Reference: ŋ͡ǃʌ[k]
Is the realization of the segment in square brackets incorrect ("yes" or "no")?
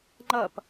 yes